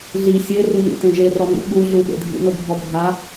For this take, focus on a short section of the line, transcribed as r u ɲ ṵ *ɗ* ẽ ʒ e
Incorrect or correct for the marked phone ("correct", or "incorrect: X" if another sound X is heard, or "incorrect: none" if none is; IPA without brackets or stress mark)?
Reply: incorrect: t